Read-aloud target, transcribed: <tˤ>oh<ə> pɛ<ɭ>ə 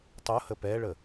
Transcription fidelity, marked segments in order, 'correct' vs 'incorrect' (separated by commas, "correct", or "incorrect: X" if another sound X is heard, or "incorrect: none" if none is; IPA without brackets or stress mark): correct, correct, correct